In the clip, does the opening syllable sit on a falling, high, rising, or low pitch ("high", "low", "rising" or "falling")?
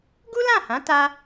high